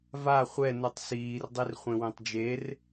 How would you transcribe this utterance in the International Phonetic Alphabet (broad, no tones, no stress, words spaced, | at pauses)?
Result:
va χʷɛ nutˤsiːr dˤirχʷẽwẽtˤd͡ʒer